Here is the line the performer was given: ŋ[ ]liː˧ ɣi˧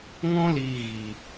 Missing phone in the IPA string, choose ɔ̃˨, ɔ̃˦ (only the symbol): ɔ̃˦